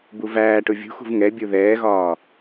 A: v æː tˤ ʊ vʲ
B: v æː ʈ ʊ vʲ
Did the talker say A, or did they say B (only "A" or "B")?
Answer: B